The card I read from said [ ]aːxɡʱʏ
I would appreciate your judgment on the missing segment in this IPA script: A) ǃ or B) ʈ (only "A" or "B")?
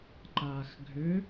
A